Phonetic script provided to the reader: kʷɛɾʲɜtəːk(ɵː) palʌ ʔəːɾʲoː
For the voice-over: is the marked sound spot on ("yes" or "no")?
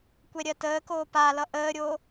no